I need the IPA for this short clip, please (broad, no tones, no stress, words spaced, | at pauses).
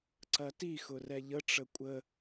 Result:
ǀɐti xʊrɛʎə ʈ͡ʂəkʷʼə